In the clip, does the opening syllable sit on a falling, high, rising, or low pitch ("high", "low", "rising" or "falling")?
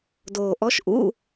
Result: low